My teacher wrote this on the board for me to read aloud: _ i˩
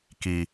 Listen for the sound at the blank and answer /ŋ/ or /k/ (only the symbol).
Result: k